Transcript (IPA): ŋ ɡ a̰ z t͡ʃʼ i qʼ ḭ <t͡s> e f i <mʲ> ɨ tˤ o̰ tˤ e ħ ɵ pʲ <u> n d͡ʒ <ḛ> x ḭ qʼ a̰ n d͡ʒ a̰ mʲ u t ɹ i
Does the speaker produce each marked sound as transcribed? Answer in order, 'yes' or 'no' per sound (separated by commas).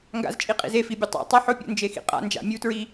no, no, no, no